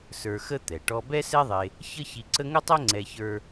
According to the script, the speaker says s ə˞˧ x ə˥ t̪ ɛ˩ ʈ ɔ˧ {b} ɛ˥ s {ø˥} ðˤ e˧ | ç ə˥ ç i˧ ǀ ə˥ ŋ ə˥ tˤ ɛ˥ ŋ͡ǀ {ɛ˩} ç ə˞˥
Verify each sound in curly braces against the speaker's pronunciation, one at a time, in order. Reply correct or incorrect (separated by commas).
correct, incorrect, incorrect